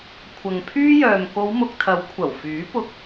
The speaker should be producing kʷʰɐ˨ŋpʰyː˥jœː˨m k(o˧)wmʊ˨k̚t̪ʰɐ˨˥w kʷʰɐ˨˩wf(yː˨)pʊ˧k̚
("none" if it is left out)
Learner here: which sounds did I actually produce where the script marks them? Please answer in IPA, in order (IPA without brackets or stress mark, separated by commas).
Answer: o˨˧, yː˨˥